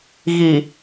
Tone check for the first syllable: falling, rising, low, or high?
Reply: low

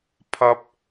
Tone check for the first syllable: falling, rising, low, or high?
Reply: high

